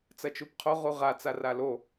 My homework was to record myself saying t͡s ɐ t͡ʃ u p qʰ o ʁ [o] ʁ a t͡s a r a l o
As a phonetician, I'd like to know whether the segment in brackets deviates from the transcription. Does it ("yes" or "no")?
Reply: yes